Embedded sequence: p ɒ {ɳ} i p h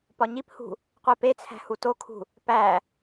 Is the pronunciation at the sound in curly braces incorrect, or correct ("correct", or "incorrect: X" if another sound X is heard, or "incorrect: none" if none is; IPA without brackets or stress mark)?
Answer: incorrect: ɲ